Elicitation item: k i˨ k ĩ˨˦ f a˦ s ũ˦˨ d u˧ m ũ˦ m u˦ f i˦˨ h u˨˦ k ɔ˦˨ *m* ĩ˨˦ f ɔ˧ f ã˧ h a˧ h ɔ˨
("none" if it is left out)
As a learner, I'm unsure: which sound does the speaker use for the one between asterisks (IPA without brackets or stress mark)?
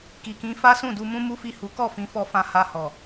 f